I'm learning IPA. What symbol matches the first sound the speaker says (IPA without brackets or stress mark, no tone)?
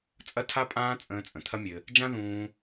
t͡sʼ